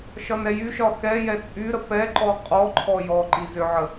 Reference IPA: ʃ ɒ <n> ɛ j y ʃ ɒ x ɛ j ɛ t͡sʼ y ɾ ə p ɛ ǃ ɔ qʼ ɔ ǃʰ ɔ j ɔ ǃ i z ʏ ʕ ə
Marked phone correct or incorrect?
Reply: correct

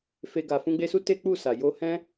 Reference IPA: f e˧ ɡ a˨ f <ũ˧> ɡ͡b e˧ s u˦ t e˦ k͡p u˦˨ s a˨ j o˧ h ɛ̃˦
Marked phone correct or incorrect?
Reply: correct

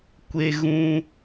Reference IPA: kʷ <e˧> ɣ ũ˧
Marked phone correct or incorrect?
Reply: correct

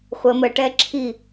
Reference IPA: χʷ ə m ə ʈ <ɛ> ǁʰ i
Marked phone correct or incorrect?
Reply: correct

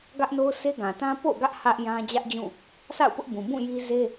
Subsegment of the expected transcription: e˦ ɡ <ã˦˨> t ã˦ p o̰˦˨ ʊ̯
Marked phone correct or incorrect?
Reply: incorrect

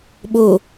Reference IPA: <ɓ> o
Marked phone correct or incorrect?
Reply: correct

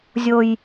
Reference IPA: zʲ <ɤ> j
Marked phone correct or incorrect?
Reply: incorrect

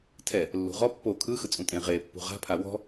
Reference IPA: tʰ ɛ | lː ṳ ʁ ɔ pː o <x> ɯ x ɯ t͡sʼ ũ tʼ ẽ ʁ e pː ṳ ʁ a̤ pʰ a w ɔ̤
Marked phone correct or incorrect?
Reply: incorrect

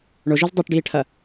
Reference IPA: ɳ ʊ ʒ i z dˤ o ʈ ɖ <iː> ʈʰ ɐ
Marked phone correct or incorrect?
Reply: correct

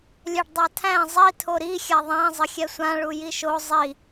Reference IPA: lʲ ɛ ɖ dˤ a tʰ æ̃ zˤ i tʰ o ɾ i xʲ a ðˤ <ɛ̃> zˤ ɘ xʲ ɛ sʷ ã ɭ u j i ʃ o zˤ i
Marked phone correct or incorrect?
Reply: incorrect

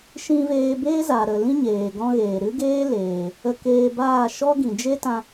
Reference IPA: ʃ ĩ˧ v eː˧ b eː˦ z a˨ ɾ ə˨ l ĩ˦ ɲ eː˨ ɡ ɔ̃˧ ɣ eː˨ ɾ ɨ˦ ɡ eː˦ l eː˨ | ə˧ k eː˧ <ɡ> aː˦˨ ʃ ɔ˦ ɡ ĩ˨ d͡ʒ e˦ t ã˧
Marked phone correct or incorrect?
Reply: incorrect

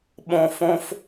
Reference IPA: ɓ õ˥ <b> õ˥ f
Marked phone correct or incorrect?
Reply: incorrect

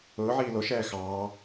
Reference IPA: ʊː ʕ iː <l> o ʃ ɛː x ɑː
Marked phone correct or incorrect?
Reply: correct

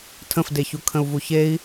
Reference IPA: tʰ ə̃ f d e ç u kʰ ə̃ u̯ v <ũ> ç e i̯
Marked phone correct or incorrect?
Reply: incorrect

